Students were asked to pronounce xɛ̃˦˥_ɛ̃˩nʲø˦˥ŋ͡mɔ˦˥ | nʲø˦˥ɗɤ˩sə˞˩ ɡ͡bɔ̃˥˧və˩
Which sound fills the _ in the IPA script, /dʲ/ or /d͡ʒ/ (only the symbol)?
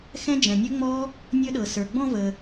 d͡ʒ